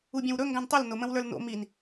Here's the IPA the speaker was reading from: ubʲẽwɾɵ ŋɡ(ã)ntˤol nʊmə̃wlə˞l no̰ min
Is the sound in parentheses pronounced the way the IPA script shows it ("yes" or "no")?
yes